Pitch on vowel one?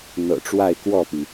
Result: low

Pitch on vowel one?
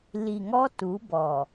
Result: low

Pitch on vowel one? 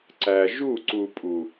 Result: low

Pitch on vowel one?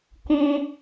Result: high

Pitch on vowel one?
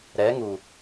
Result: rising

